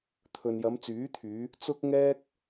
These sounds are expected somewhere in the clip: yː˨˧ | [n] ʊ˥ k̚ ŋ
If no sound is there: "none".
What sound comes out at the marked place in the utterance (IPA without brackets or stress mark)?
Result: t͡s